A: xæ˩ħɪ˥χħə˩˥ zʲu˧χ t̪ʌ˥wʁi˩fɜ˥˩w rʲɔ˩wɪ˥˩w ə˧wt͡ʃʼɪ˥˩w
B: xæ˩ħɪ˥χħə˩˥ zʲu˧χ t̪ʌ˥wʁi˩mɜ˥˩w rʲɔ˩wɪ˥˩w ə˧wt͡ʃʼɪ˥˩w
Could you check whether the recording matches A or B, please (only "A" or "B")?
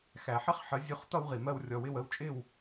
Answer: B